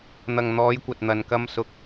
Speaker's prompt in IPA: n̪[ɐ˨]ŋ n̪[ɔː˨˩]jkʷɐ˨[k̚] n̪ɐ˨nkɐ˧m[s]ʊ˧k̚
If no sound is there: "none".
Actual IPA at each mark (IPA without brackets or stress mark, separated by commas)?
ɐ˨, ɔː˨˧, t̚, s